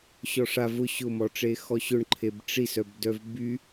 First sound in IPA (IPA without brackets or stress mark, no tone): ɕ